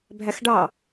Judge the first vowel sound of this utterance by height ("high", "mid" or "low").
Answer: low